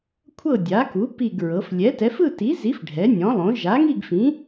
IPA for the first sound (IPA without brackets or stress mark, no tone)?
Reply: kʷʰ